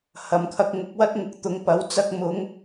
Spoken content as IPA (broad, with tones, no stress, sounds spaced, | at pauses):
h ɐ˨ m kʰ ɐ˧ k̚ ŋ ʊ˨˥ k̚ w ɐ˥ t̚ ŋ ʊ˧ k̚ t̪ ʊ˨˧ ŋ p ɐ˨˥ w t͡s ɐ˧ k̚ m ʊ˨˧ ŋ